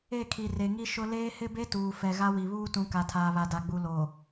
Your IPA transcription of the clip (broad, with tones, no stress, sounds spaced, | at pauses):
e˦˨ kʰ i˨ r e˨ ŋ i˦ ʃ ʊ˦ l eː˦ h ɪ˦ b e˦ t uː˨ f ɛ˨ ɣ a˦ w i˨ β uː˦ t ũ˨˦ k a˨ tʰ aː˨ β a˨ d a˨ ɡ͡b u˨ l o˨